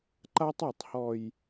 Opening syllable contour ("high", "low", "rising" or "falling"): high